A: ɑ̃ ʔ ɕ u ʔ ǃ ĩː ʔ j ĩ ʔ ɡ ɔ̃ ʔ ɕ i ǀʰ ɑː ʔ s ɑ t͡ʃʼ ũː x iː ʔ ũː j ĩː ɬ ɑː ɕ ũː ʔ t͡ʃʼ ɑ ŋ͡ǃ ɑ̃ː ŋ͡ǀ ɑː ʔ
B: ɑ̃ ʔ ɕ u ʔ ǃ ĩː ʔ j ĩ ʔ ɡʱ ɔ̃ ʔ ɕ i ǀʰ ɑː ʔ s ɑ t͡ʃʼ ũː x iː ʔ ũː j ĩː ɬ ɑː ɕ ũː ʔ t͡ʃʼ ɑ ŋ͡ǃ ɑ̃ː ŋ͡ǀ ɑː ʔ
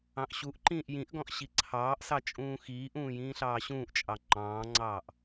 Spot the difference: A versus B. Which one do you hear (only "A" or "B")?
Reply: A